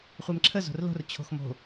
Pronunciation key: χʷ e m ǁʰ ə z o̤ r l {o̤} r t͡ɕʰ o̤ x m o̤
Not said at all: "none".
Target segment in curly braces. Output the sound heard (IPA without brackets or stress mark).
o̤